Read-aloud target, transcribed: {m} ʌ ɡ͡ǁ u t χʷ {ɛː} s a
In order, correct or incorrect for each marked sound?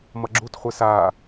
correct, incorrect: ɛ

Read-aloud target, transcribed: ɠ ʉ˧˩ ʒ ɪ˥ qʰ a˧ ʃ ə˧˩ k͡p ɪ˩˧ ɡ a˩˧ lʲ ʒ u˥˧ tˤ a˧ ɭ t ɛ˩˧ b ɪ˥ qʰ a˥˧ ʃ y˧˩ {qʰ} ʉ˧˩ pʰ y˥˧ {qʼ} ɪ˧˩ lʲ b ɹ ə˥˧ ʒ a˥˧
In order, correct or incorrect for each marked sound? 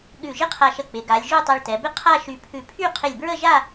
incorrect: pʰ, incorrect: qʰ

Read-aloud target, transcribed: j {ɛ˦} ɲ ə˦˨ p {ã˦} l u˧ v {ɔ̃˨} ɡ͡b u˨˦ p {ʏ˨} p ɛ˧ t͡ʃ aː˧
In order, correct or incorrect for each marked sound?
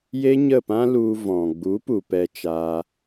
incorrect: e˦, correct, correct, incorrect: u˨

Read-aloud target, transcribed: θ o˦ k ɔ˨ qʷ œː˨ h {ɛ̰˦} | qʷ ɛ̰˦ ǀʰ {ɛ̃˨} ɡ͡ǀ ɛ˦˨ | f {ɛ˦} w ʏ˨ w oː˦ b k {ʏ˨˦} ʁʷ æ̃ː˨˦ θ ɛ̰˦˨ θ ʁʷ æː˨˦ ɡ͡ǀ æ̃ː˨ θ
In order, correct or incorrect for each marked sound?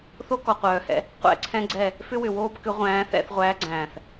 correct, incorrect: ɛ̃˦, incorrect: ʏ˦, correct

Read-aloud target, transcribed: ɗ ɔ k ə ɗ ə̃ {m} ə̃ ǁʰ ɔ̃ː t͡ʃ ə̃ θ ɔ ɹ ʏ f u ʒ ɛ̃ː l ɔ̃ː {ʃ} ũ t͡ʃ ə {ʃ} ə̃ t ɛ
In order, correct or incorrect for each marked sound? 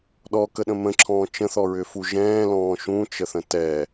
correct, correct, incorrect: θ

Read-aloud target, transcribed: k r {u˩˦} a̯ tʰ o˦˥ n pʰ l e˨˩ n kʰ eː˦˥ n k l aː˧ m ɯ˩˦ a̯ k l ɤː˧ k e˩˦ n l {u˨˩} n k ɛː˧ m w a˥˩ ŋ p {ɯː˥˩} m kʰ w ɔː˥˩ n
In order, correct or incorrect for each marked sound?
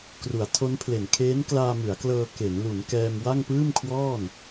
correct, incorrect: u˩˦, correct

